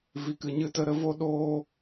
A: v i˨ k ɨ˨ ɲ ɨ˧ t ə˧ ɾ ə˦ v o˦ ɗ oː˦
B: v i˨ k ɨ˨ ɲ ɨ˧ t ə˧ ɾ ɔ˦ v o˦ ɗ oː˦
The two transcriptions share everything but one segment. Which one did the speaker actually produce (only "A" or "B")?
A